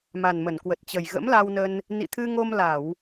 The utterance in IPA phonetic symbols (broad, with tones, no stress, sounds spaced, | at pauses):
m a˨˩ n m ə˧˩ n k w ə˨˩ t̚ t͡ɕ ə˨˩ j ɣ ə̰˧˥ m l a˧ w n ə˧ n | n ḭ˧˨ t̪ʰ ɨ˧ ŋ o˧ m l a˧˩˨ w